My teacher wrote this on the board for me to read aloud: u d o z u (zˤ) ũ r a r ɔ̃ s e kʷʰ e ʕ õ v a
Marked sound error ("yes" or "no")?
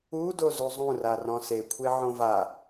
no